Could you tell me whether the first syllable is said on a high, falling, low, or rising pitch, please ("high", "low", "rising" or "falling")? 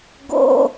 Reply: high